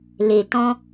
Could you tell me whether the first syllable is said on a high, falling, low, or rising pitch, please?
low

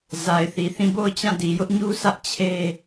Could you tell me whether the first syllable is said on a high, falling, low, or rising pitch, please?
low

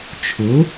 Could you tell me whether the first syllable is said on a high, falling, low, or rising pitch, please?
rising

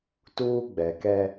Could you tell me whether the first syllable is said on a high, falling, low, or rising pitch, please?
high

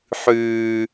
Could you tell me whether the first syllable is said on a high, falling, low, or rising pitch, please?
high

